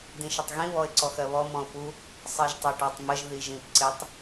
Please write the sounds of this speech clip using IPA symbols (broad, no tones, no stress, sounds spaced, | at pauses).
d ĩ ʃ ə tˤ ɣ ĩ β ɔ ɪ̯ ǀ ɔ x ɜ β ɔ m ɔ̃ ʊ̯ p u | sˤ ɜ ʒ tˤ ɛ ʈ ɑ tˤ m ə ʒ ð i ʒ ĩ p ǀ ɪ tˤ